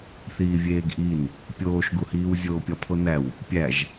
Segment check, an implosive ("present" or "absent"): absent